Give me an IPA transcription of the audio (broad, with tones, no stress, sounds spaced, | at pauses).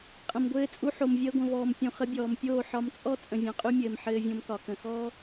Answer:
qʼ ə̃˨ m ɡʷ ɘː˧ t͡sʼ u˧ ħ o˨ m vʲ əː˧ ɡʷ ə̃˨ v ɔː˨ m pʲ ũ˨ χ ə˧ bʲ ɔː˨ m pʲ oː˦˨ ħ ɒ˧ m t͡sʼ ɔ˦ t͡sʼ ə̃˨ vʲ ɔ̃˨ qʼ y˧ mʲ ɘː˨ m ħ ɘː˧ vʲ õ˧ m k ɒ˨ k ə̃˨ x ɔː˦